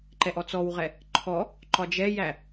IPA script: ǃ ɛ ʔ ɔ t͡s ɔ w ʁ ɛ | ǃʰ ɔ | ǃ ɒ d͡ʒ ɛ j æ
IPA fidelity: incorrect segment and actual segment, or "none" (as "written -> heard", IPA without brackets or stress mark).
none